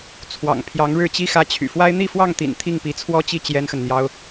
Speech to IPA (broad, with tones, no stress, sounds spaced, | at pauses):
t͡sʰ w ɑ̰˨˩ ŋ pʰ j ɑ˧˥ ŋ ɻ ɻ̩˥˩ t͡ɕ i˥ x ä˧˥ t͡ɕʰ y̰˨˩ f w a˥ ɪ̯ n̪ i˥˧ f w ɑ˥˩ ŋ t̪ ḭ˨˩ n t̪ʰ i˥˩ ŋ p i˧˥ t͡sʰ w ɔ˥ t͡ɕ i˥˩ t͡ɕ j ɛ˥ n x ə˨ n n̪ j ɑ˥ ʊ̯